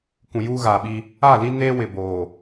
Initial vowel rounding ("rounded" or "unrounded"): rounded